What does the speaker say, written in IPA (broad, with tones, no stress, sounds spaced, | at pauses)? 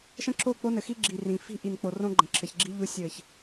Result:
ʃ ə̃˦ ǁʰ o˦˨ k͡p o˦ n ɘ˨ x i˦ ɡ͡ǁ i˨ r ĩ˨ f i̤˦ ʔ i˨ n k͡p o˨ r õ˦ ɡ͡ǃ ə̃˨ ǁʰ ɘ˨ ç ɡ͡ǁ i˦ ʎ u˦ sʲ ɘ˦˨ ç